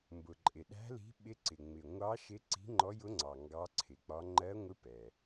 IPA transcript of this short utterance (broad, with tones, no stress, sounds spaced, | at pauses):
m b ʊ˩ ǃʼ ɪ˩ ɗ æ̤˧˥ l i̤˧˥ ɓ ɪ˧˥ ǀ ɪ˩ ŋ͡m ɪ˩ ŋʷ ɑ˧˥ ʃ ɪ˧˥ ǀ i̤˧˥ ŋ͡ǃ ɔ˧˥ j ʊ˧˥ ŋ͡ǀ ɑ˩ ŋ ɡ ɑ˧˥ ǀʰ ɪ˩ k͡p ɒ˧˥ ŋ͡ǃ ɜ˧˥ ŋʷ ɪ˧˥ p ɛ˩